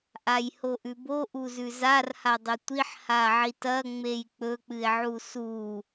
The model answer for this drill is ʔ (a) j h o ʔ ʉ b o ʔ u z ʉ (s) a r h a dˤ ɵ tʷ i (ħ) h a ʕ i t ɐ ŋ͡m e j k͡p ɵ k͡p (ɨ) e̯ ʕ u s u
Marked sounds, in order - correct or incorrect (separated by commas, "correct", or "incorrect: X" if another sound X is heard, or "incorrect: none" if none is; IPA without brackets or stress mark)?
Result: correct, incorrect: z, correct, correct